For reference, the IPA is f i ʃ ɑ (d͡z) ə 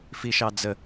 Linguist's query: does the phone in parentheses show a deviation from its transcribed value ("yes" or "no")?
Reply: no